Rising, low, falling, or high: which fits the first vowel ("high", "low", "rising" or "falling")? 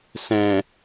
low